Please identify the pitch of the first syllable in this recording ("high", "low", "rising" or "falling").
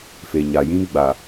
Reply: low